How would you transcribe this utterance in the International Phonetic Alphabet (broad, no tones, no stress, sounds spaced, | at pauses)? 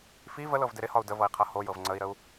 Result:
f i v ə l ɤ v d ɪ ɾ ɪ h ɒ u̯ d ə v ɤ i̯ qʰ ɤ h o j ɤ v ŋ͡ǀ ə i̯ ɾ ə u̯